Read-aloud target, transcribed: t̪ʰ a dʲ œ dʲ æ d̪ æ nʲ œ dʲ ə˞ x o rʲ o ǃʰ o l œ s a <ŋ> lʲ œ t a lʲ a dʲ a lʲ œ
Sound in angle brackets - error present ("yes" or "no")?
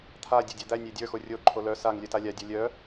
no